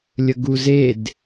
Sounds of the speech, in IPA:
lʲ ə ɡ u z e d

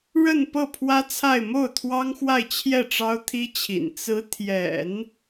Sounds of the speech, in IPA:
ɻ ə˥˧ n p ɤ˥˩ pʰ w ä˥ t͡sʰ a˥˧ ɪ̯ m o˥˩ ʊ̯ t̪ʰ w ɑ˥ ŋ x w a˥˧ ɪ̯ t͡ɕʰ j ɛ˥˩ ʈ͡ʂ ɑ˥ ʊ̯ t̪ʰ i˥ t͡ɕʰ ḭ˨˩ n t͡s ɹ̩˧˥ t̪ʰ j ɛ̰˨˩˦ n

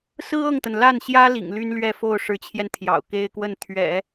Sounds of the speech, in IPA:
s ɹ̩˥ ɤ˥˩ ŋ t̪ ə˩ n l a˥˩ n ɕ j ä˥ l ḭ˨˩ ŋ l y˥ n l ɥ ɛ˥˧ f o˥˩ ʊ̯ ʂ ɻ̩˧˥ t͡ɕʰ j ɛ˧ n t̪ʰ j ɑ̰˨˩ ʊ̯ k e˥ ɪ̯ k w ə˥˩ n t̪ʰ ɥ ɛ̰˨˩˦

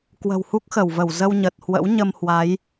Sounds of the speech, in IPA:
k w ə̤˨˩ w h u˦˥ k̚ x ə˧˩ w v ə˧˩ w z ə˧ w ɲ ə˨˩ t̚ h w ə̰˧˥ w ɲ ə˧ m h w a˨˦ j

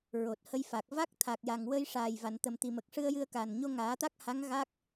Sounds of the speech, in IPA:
ɹ o˨˩ t̚ h ə˧ j f a˨˩ k̚ v a˦˥ k̚ t̪ʰ a˨˩ k̚ j a˨˩ ŋ w ə˧ j ʂ aː˨˩ j v a˨˩˨ n t̪ ə˨˩ m t̪ i˨˩ m ə˨˩ k̚ ʂ ɨ˧ ə̯ j ɨ˧ ə̯ k a˨˩ n ɲ o˧ ŋ aː˨˩˦ t̪ a˦˥ k̚ h a˧˥ ŋ ɣ a˦˥ k̚

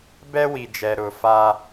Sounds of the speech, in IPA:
b ɛ˦ w i˨ d͡ʒ ɛ˨ ɾ ʊ˨ f a˦

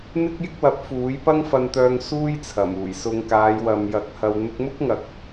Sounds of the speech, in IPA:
n̪ ɪ˥ k̚ j ɪ˥ k̚ w ɐ˨˥ p̚ f uː˨˥ j p ɐ˥ ŋ f ɐ˧ n t̪ œː˧ ŋ s uː˥ j t͡sʰ ɐ˨˩ m uː˨˩ j s ʊ˧ ŋ k aː˨˧ j w ɐ˨ m j ɐ˨˥ k̚ h ɐ˨ w n̪ ʊ˧ k̚ m ʊ˥ k̚ ŋ ɐ˨ k̚

